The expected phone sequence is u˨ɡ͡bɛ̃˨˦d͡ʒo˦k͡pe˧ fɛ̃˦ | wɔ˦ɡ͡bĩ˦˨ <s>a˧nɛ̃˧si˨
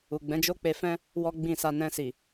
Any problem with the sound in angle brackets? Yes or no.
no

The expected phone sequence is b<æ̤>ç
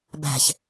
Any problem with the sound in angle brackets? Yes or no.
no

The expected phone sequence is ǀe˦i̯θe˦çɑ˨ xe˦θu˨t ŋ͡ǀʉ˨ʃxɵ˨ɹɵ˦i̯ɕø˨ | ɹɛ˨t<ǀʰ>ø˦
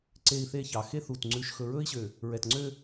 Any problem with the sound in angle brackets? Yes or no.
yes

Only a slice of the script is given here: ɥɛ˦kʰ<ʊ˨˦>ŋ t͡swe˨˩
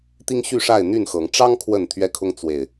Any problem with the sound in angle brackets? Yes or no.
yes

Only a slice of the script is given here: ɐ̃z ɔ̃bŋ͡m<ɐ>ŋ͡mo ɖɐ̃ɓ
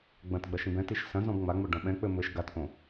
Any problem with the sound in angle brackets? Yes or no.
yes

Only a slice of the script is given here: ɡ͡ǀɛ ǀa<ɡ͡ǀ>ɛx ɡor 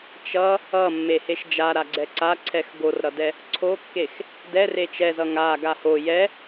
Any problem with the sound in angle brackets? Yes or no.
yes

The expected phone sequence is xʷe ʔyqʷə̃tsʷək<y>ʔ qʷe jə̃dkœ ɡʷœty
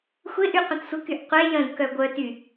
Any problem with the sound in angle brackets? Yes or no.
no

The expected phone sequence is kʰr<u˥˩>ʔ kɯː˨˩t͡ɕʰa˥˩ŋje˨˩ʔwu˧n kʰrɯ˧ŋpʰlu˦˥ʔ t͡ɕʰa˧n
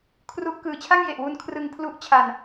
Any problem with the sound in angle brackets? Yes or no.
no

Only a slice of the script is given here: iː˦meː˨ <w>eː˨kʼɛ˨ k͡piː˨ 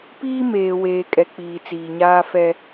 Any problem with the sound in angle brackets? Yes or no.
no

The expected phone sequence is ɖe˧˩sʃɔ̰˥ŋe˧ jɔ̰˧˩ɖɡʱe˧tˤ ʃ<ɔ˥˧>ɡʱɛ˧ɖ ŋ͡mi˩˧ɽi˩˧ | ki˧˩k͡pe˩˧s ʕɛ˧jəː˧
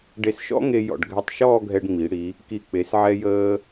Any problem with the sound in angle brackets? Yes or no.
yes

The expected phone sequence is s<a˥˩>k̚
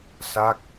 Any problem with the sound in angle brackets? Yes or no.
no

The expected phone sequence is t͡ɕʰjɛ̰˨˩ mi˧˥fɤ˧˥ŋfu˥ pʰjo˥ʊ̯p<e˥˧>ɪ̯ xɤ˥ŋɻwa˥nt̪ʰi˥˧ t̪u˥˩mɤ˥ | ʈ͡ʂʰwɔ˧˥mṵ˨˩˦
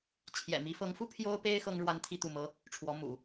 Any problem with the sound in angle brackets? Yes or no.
yes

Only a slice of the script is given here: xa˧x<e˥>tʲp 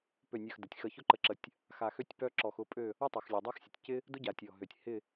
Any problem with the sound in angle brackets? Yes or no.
yes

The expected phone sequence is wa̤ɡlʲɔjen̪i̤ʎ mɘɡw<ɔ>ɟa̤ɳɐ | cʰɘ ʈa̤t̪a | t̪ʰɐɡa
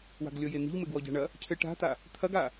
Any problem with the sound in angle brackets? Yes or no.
no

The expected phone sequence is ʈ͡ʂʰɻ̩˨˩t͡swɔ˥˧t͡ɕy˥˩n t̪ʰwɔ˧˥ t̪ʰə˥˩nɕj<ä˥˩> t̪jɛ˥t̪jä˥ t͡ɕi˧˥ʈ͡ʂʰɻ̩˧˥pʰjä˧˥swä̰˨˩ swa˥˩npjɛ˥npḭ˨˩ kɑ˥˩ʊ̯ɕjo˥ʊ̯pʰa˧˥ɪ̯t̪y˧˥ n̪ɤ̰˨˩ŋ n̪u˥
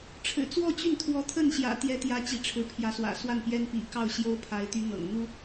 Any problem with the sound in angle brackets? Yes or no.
yes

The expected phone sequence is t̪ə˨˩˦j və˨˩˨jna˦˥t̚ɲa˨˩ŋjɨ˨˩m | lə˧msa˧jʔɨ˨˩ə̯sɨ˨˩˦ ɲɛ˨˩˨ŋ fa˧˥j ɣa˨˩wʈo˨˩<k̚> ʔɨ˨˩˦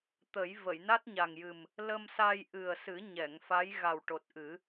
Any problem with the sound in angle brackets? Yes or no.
yes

